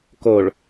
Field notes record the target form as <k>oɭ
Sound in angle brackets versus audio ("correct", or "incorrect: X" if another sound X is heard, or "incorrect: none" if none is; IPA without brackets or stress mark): correct